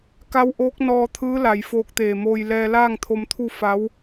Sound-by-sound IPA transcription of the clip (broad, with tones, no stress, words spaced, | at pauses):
ka˧˥wʔoː˧˥k̚nɔː˧t̪ʰɯː˧˥ la˩˧jfoː˧k̚t̪eː˧˩moː˧j lɛː˧laː˥˨ŋt̪ʰo˧mt̪ʰu˥˨ fa˧˥w